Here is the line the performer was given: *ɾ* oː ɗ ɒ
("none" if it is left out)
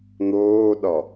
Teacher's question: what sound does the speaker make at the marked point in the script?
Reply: n̪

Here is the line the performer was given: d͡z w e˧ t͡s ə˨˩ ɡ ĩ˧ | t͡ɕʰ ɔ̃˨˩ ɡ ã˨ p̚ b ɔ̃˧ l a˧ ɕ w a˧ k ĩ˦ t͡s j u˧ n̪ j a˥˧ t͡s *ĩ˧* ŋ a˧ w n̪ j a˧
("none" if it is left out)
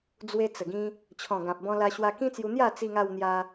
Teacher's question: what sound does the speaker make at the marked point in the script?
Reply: i˧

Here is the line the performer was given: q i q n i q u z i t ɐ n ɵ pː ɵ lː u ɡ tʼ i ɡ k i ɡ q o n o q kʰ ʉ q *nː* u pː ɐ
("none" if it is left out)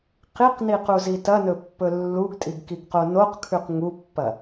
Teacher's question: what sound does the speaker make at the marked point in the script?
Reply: ŋ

